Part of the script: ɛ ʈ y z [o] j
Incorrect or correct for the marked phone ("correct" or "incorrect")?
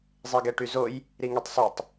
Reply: correct